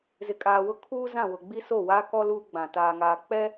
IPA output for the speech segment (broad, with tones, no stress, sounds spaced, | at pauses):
z ɪ˨ kʼ aː˨ w ʊ˦ kʰ uː˦ z ã˦˨ w ʊ˨ ɡ͡b i˦ s o˦˨ w aː˦ k ɔ˦ l uː˦ ɡ͡b ã˨ t aː˨ ŋ aː˨ k͡p ɛ˦